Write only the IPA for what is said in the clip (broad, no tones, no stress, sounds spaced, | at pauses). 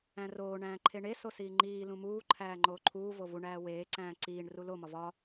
æ̃ r oː ɳ æ̃ː ǃʰ e ɳ e s o s iː ŋ͡ǃ iː l ũ m uː ǃʰ æː ŋ͡ǃ oː ǃʰ uː v o v u ɳ æː w eː ǀ æ̃ː ǀ iː ɳ r u l o m ɒ v ɒ